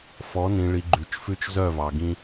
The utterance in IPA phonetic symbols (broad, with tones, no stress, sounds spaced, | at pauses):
f ɔ˨˦ n ĩ˨ ɭ i˨ ɡ͡ǃ ʉ˨ t͡ʃ f ʉ˦ t͡ʃ z œ˦˨ v ɑ˨ ɡ ĩ˦